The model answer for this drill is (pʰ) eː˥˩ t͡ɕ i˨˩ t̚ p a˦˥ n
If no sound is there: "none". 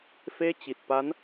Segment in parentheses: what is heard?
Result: f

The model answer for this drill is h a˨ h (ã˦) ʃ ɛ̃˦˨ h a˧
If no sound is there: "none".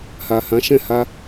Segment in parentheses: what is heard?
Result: ã˨˦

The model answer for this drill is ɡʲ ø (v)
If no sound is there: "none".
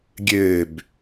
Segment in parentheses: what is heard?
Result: b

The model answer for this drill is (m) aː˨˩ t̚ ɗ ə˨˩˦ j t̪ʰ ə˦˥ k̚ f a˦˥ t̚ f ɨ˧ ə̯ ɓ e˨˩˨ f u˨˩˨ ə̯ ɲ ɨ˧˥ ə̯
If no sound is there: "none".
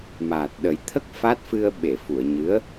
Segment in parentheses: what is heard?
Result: m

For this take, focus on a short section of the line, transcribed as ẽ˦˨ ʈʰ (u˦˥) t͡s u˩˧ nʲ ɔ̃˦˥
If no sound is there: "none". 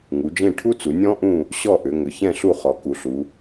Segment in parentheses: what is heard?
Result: u˦˥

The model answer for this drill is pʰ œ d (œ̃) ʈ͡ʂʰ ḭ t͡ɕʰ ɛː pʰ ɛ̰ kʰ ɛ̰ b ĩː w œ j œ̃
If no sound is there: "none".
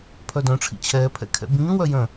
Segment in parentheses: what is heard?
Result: œ̃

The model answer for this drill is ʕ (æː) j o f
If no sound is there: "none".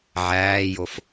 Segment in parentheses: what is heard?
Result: æː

